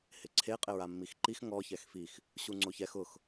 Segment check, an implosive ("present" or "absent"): absent